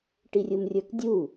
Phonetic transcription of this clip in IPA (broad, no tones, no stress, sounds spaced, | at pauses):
ʈ i rʲ u m rʲ ə˞ k dʲ u